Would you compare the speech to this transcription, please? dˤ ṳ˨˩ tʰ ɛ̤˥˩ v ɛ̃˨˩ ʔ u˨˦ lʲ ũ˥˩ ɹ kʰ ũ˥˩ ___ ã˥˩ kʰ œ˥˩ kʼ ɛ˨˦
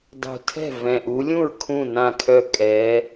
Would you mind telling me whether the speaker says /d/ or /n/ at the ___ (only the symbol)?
n